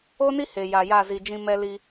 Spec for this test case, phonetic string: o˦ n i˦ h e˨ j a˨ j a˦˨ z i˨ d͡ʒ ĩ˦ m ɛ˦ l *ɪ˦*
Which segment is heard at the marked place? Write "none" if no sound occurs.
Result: i˦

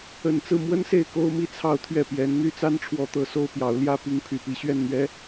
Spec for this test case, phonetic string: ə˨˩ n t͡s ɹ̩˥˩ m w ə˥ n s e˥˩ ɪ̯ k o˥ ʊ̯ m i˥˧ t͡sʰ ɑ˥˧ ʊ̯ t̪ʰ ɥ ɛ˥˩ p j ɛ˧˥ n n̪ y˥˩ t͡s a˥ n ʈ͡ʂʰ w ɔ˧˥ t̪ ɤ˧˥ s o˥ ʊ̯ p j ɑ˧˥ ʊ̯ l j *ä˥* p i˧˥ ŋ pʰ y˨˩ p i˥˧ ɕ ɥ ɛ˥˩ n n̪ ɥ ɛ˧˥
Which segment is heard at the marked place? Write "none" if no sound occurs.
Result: ä˥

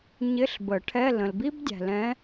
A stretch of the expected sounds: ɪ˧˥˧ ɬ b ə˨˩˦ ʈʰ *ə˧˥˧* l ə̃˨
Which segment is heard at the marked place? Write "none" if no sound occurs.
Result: ɛ˧˥˧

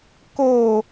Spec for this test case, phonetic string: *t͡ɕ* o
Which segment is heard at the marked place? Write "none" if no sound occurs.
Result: k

